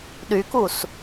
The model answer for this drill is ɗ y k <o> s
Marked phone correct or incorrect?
incorrect